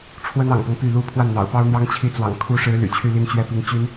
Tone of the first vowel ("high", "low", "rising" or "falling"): high